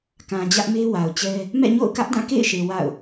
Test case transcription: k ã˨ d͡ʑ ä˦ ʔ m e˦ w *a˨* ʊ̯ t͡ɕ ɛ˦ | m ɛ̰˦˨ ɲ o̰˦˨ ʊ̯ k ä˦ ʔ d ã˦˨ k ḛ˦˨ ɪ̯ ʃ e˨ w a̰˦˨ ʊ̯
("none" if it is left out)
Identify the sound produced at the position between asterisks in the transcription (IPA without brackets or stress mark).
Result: a˨